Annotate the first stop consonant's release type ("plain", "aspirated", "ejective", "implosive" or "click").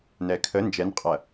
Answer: aspirated